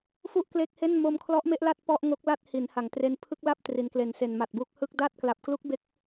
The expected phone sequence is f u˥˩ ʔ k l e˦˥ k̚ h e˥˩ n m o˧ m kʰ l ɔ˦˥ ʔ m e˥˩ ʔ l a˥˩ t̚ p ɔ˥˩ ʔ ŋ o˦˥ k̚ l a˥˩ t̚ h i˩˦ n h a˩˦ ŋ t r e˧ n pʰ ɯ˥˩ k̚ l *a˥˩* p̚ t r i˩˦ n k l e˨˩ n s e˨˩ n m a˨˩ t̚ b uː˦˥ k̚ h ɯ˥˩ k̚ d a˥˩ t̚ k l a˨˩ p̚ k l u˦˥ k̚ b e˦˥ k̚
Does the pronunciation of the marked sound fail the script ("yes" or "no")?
no